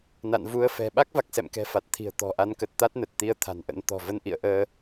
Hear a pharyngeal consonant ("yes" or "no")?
no